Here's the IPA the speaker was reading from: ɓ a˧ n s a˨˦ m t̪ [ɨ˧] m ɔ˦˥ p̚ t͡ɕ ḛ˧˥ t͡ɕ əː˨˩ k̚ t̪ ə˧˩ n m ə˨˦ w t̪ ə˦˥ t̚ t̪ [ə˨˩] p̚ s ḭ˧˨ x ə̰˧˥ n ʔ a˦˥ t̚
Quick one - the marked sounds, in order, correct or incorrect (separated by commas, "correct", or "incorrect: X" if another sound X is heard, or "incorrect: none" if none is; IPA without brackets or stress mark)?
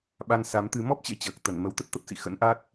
correct, incorrect: ə˦˥